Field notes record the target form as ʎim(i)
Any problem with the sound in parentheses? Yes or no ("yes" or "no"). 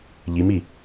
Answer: no